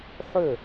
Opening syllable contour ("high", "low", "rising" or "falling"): falling